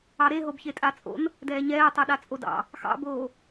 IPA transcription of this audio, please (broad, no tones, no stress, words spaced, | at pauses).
ɑɾeɦob çetʼat͡sʼo̰n | dɛːɲɛːtˤɛ ɗat͡sʼodɑ̰ | xɑ̰boː